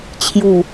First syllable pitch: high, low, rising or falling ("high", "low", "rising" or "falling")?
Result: low